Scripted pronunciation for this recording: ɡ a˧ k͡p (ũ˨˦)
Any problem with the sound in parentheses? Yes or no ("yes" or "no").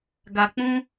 yes